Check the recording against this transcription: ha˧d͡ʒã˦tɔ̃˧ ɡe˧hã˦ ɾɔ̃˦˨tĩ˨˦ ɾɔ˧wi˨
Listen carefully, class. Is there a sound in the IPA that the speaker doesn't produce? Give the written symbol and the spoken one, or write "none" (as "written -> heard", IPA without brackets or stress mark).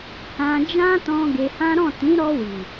a˧ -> ã˧